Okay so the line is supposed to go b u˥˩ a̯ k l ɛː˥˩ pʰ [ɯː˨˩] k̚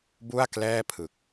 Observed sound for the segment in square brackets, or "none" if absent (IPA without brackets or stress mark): ɯ˨˩